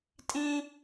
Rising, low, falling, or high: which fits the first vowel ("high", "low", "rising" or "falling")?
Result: high